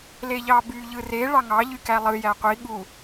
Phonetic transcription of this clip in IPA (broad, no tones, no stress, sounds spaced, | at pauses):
l e ʎ ɑ b y ʎ ɯ r e ɭ ɑ ŋ ɑ ʎ y k æ lˠ ɯ j æ qʷ i ɠ u